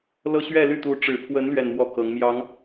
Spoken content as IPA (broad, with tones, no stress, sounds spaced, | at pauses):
l ɤ˥˧ ɕ ɥ ɛ˥˧ l y˥˩ t̪ u˧˥ ʈ͡ʂ ɻ̩˨˩ pʰ w ə˧˥ n l ɥ ɛ˥˧ n m w ɔ˥˩ k ɤ˧˥ ŋ m j ɑ˧˥ ŋ